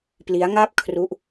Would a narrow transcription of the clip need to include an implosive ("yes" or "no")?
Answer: no